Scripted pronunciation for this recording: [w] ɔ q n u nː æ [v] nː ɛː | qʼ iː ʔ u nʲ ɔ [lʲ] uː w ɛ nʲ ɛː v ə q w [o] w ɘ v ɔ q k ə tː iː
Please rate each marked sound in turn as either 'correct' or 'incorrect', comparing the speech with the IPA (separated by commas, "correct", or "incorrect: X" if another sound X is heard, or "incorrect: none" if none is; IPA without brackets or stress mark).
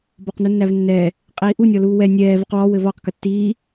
incorrect: b, correct, incorrect: l, incorrect: ɔ